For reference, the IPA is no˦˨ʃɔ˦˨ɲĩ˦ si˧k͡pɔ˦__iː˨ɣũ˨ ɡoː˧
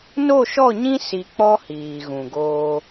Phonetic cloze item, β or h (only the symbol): h